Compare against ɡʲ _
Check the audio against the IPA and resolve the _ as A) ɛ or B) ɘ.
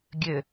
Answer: B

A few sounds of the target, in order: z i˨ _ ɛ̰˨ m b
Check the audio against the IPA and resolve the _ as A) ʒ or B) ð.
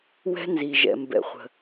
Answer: A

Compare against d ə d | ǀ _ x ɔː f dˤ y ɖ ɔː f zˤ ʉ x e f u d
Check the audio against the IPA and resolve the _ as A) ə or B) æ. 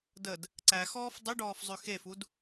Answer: B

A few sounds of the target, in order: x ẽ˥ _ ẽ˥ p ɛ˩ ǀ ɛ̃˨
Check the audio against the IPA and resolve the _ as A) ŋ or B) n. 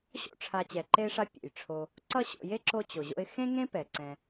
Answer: A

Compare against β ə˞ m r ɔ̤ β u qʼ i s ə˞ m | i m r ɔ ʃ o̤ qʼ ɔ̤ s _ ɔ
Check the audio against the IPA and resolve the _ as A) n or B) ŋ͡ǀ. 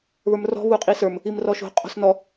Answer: A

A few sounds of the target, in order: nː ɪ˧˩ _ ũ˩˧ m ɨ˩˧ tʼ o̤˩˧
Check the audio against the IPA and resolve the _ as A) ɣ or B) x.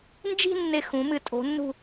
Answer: B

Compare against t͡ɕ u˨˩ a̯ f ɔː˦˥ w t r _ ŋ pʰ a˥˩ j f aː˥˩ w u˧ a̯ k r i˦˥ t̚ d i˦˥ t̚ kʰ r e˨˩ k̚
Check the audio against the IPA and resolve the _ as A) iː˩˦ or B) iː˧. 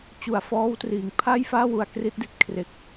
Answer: A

